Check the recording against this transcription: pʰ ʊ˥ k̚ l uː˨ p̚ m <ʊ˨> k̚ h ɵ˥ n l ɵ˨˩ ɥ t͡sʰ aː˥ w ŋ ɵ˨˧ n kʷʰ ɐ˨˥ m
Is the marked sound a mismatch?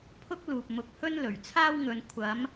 no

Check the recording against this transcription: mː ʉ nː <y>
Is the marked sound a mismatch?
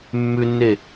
yes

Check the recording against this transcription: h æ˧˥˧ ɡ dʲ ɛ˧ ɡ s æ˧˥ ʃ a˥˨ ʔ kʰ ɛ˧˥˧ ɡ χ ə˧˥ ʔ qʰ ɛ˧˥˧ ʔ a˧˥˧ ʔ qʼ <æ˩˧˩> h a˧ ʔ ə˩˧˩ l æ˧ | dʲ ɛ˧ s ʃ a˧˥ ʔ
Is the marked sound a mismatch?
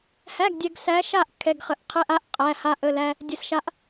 no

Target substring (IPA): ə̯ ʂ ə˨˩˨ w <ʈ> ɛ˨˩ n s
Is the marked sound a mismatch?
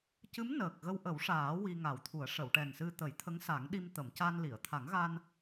no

